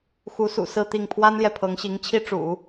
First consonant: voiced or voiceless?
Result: voiceless